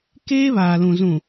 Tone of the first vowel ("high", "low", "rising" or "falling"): high